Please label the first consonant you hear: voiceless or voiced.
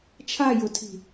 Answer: voiceless